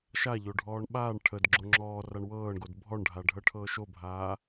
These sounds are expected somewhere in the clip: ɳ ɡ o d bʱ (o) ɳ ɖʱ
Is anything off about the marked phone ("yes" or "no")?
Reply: yes